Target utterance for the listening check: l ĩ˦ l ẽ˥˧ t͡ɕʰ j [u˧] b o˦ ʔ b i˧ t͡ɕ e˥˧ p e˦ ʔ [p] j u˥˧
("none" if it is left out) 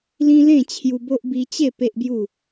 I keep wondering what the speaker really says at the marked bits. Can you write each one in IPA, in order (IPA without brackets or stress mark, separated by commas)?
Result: u˧, b